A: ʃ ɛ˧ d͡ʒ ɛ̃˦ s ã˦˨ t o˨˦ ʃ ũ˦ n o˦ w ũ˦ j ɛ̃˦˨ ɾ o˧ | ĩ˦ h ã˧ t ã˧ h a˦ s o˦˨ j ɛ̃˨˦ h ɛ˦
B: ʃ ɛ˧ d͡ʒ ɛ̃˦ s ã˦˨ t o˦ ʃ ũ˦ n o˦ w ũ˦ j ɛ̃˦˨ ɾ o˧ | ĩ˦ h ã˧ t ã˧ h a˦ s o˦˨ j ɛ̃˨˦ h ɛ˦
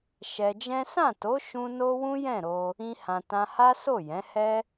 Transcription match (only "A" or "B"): A